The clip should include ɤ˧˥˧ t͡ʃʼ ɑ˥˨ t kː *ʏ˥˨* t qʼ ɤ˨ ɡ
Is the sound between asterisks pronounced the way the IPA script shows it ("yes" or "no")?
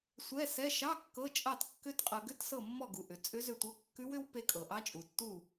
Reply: no